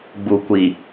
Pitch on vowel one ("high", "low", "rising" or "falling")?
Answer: low